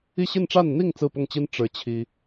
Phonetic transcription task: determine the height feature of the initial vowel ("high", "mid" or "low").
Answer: high